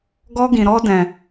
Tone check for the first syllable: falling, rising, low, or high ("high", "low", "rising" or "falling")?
high